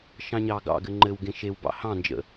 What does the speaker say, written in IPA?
ʃ ɑ̃ ɲ ɑ ɡ ɑ̰ ɡ ɘ ŋ͡ǃ ɘ w ɡ ẽ ʃ e w b ɑ̰ h ɑ̃ n d͡ʒ ə̰

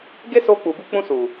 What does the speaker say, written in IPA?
ɡ e˦ s o˧ k͡p u˨ b u˧ k͡p ũ˧ s u˨

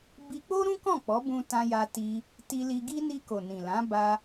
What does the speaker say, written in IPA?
b i˧ k͡p o˦ ɾ ũ˦ k ɔ̃˦˨ k͡p ɔ˨˦ b ũ˧ t ã˧ j a˧ t i˧ | t i˧ l i˧ ɡ i˦ n i˧ k o˨ n ĩ˨ l ã˨˦ b a˧

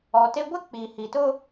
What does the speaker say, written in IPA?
ɔ˨ t e˦ ɡʷ ɪ˦ k͡p i˨ h i˨ t ʊ˦

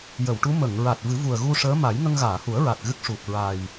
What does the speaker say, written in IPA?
j ə˨˩˨ w ʈ u˧˥ m ə˨˩˨ ŋ ɹ a˨˩ t̚ v ɨ˨˩˦ v u˨˩ ə̯ ɣ u˧ ʂ əː˧˥ m a˨˩˦ j ŋ ə˧ ŋ ɣ aː˨˩˨ h u˨˩˦ ə̯ ɹ a˨˩ t̚ ɣ ɨ˦˥ k̚ ʂ u˨˩ k̚ ɹ a˨˩ j

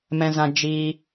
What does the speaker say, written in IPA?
m ɛ̃˧ z ã˧ d͡ʒ iː˧

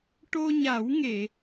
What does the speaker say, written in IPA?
ʈ o˧ ɲ a˨˩˦ w ŋ e˨˩˨

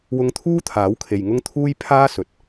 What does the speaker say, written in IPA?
w ʊ˧ ŋ t̪ʰ uː˥ t̪ʰ aː˨˥ w kʰ e˨ j ŋ ʊ˥ ŋ t̪ʰ uː˥ j pʰ aː˥ s ɵ˨ t̚

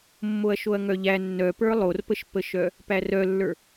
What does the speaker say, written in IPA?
mː o ɐ̯ ʃ o ɐ̯ ŋ œ ʎ æ nː œ p ə˞ lˠ o r p ə ʃ p ə ʃ œ | p æ r œ lː ə˞

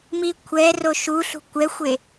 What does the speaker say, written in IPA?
m i kʷʰ ɛ r o ʃ u ɬ ṳ kʷ ɛ xʷ e

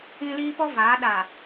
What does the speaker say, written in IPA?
ĩ˦ l iː˦ p ɔ˦ v aː˨˦ ɗ a˨

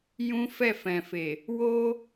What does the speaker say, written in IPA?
j ũ˦ f ɛ˦˨ f ɛ̃˨ f e˨ | w o˧

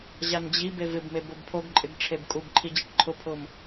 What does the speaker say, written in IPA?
ʑ a n d͡ʑ i b e v ɪ b m e b o b pʰ o ɡ ǃʼ ɪ ɡ ʈ͡ʂʰ e b kʼ u b ǃʰ i d͡ʑ i ʈ ǃʰ ʊ pʰ ʊ m

